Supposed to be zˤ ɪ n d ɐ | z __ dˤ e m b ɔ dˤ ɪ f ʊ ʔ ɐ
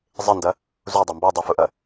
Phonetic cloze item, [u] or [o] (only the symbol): u